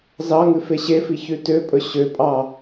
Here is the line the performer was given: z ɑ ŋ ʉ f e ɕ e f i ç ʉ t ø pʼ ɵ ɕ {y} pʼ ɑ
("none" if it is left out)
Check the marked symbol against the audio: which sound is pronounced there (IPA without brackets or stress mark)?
ø